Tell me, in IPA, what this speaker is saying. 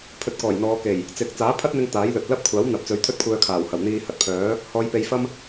pʰ ɵ˧ t̚ k ɔː˨˩ j n̪ ɔː˨˧ k e˨˩ j | t͡s ɪ˨˥ k̚ t͡s aː˨˥ pʰ ɐ˥ t̚ n̪ ɪ˧ ŋ t̪ aː˨˥ j l ɵ˨ t̚ l ɐ˥ p̚ kʷʰ aː˨˥ w n̪ ɐ˨ p̚ t͡s ɵ˨˥ ɥ t̪ʰ ɵ˥ t̚ kʷʰ œː˧ kʰ aː˨˩ w h ɐ˨˩ w n̪ iː˧ h ɐ˧ t̚ pʰ œː˨˥ | h ɔː˨˧ j p e˨˧ j f ɐ˥ m

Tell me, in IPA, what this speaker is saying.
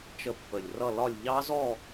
t͡ʃ ə˧ pː ə˨˩ lʲ r ʌ˥˧ l ɒ˥˧ lʲ ʎ ɑ˦˥ z ɔ˥˧

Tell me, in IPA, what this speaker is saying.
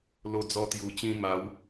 l o˧ d͡z ɔ˧ t̪ j u˨˩ t͡ɕ ĩ˧ m a˨˦ w

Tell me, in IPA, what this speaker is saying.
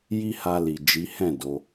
j i˦ h a˧ l i˨ d͡ʒ i˨˦ h ɛ̃˦˨ d o˨˦

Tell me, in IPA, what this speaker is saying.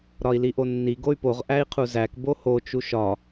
ɾ ɒ i̯ l i ʔ o nː i ɡ o y̯ p o ʁ ʔ æ i̯ qʰ u z æ k b o h o t͡ʃ u ʃ ɒ

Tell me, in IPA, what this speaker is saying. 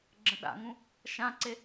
ɡ͡ǁ ə̃ ɗ a̰ ŋ ũ | ʃ ã ǀ e

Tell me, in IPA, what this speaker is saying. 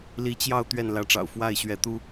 l i˧˥ t͡ɕ j ɑ˥˧ ʊ̯ t̪ ɥ ɛ˥˩ n l ä˧˥ ʈ͡ʂ ɑ̰˨˩ ʊ̯ f w a˥˩ ɪ̯ ɕ ɥ ɛ˧˥ t̪ u˥

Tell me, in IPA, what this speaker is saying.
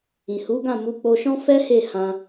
ĩ˨ h u˨˦ ɡ ã˦˨ m u˨˦ k͡p o˧ ʃ ɔ̃˦ f ɛ˦ h e˦˨ h ã˧

